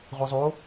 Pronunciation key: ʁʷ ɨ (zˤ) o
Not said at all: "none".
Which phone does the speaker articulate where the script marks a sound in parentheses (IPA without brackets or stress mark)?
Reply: zˤ